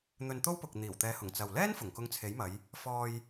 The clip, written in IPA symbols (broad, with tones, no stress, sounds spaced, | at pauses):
n̪ ɵ˧ n t̪ o˥ w p ʊ˨ k̚ n̪ iː˨˩ w t̪ ɛː˨˧ h ʊ˨˩ ŋ t͡s ɐ˨ w l ɛː˥ n f ʊ˨˩ ŋ k ʊ˧ ŋ t͡sʰ e˨˥ j m ɐ˨˧ j | f ɔː˧ j